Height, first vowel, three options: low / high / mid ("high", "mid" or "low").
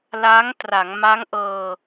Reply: low